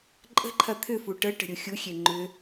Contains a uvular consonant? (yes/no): no